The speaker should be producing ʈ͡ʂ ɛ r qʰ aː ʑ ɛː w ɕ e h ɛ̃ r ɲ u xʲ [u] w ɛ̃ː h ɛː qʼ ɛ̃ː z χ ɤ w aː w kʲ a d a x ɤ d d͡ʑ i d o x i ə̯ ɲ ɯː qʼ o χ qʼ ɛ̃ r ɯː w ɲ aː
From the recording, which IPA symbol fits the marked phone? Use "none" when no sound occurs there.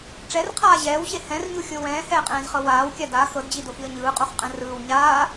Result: o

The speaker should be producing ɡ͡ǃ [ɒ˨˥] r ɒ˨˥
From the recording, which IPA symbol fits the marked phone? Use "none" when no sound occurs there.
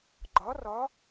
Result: ɒ˨˥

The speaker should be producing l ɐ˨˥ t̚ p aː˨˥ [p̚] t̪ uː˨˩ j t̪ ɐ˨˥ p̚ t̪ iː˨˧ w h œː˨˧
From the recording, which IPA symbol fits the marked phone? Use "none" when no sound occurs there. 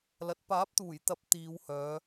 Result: p̚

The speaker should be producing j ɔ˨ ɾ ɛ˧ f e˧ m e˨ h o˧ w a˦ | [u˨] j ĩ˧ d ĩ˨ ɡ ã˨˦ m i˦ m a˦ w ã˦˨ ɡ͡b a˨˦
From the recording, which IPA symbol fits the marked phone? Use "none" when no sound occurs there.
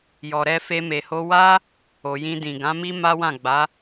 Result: o˨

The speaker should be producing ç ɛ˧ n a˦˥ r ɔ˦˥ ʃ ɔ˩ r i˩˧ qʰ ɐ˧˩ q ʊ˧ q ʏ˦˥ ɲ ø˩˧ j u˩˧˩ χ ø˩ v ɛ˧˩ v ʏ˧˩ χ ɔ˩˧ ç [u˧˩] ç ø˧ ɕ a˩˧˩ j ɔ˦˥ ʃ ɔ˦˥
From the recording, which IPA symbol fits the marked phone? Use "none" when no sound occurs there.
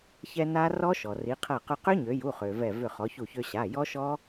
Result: u˧˩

